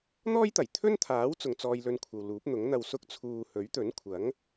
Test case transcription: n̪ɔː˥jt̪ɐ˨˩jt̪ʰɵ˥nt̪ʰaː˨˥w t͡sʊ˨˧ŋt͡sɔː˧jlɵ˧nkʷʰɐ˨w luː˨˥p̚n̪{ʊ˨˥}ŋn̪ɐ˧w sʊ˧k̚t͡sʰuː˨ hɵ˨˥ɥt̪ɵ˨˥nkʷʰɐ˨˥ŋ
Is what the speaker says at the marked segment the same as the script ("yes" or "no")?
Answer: yes